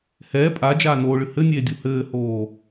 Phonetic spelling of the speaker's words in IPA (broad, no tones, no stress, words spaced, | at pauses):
hɛː pʼad͡ʒaː noːɭɨ hɘnʲeː dʲuhɘːhoː